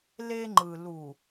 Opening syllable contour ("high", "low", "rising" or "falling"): high